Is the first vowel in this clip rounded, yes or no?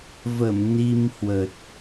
no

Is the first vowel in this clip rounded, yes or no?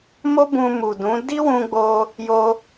yes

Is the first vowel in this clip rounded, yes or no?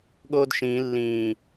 yes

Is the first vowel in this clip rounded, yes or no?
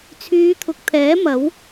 yes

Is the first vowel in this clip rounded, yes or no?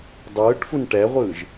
no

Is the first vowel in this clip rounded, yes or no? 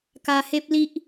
no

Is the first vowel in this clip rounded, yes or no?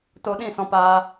yes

